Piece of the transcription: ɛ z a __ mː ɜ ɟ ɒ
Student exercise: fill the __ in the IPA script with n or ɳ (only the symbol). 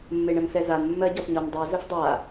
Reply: n